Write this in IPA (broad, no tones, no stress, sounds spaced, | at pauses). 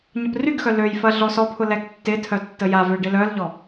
ɲ ə p r y ɡ x œ l ø j f ɐ ɮ ɔ s ɔ pʰ ʊ l ɛ ɡ tː ɪ tʰ œ tː ə j a v ø ɖ ɪ l œ l ʎ ɔ